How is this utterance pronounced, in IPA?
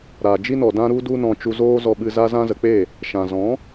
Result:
ɾ a˨ d͡ʒ i˦ n ɔ˨ d ã˦ ɾ u˦ d u˦ n ɔ̃˧ t͡ʃ u˧ z oː˦ z ɔ˧ ɓ ɨ˧ z a˦ z ã˦ z ə˨˦ k͡p e˦˨ | ʃ ã˨ z ɔ̃˨˦

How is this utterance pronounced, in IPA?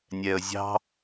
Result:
nʲ ɛ ə̯ zʲ ɑ̤

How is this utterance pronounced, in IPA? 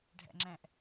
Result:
ɖʱ æ̰ ŋ͡ǁ æ̃ ʔ

